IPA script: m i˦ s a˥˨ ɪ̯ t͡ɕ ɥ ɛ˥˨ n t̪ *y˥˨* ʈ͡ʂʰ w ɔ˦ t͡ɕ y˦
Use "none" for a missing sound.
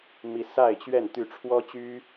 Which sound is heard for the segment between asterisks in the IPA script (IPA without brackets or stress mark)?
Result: y˥˨